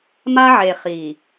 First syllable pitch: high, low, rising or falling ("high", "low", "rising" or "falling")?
high